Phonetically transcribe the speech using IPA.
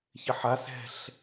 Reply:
çɪħa sɛ̤ɬ

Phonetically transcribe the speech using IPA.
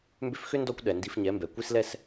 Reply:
mbʏ˧fxʏ˦ndɔ˧kʷ ɗɛ˨ndi˧fɲɛ˨˦mbɛ˨ kʷi˧slɛ˧s

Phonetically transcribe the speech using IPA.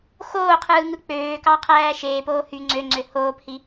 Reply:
xoːqʰɯː ŋɯk͡pøːkɑ qʰæːʃeːpoː hy ŋ͡ǀøŋ͡ǀø hoːphi

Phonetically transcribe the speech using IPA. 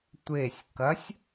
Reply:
tʷesʲ kɐsʲ

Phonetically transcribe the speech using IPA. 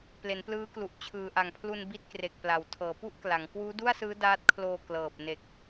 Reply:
ple˩˦nplɯː˦˥klu˨˩ʔ t͡ɕʰɯː˨˩ʔa˨˩ŋpʰlu˧n bi˥˩t̚kre˨˩k̚pla˩˦w tʰɤː˩˦pu˥˩ʔkla˩˦ŋ kwuː˦˥du˥˩a̯sɯː˦˥ daː˦˥t̚kʰloː˧ klɤː˨˩p̚ ne˨˩k̚

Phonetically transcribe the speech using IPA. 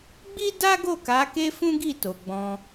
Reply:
ɡ͡bi˦da˦ɡo˦˨ ka˨˦ke˦ fũ˦ɡi˦˨to˨ ɡ͡bɔ̃˧

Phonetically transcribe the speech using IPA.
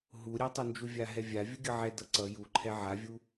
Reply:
ɦuɾʲatˤund͡ʒu vʲaɦɛvʲa vʲuɡʲʌʕɛ dʌǀʌ juǃʰɛ ʕavʲu

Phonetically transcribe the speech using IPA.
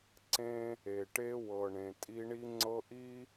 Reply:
ǀẽ˦ | e˨ʈe˦ wɤ˨ɳẽ˨ tʼi˦ɳi˦ŋ͡ǀɤ˦ʔi˦

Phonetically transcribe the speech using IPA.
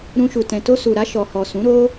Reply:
ɾũ˧ʃu˨tɛ̃˨ to˧su˨ɾa˧ ʃɔ˨hɔ˨sũ˨˦ɾo˦

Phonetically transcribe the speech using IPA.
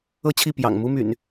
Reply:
ɤ˥˨t͡ɕʰi˥˨ pjɑ̰˨˩ŋmu˦ my̰˨˩n

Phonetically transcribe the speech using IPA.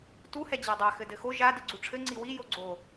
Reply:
tu hɛd͡ʑadˤa xɘdɘxo ʒa diɡ͡ǀuʈ͡ʂʰɘ ŋ͡ǀiwi joɡ͡ǀo

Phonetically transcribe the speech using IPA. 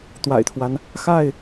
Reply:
t̪wa̰˨˩ɪ̯t̪ʰwa˦n | xa˥˨ɪ̯

